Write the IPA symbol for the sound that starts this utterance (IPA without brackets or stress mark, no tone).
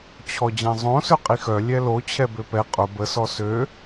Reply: t͡ɕʰ